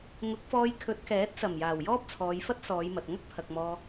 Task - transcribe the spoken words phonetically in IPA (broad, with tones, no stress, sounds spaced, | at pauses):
ŋ ʊ˨˥ k̚ f ɔː˧ j kʰ ɵ˨˥ t̚ k ɛː˨˥ t̚ s ɐ˨˩ m j aː˨˩ w j ɔː˥ p̚ t͡sʰ ɔː˨˧ j f ɐ˥ t̚ s ɔː˨˧ j m ɐ˨ t̚ ŋ ɐ˥ k̚ pʰ ɐ˨ k̚ m ɔː˧